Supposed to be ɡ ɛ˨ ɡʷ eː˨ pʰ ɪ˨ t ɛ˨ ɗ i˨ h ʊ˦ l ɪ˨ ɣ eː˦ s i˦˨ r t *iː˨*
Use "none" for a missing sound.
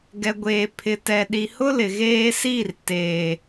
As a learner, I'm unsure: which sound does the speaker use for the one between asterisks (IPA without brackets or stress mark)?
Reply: eː˨